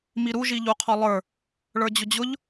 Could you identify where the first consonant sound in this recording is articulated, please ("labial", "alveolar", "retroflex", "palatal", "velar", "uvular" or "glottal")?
labial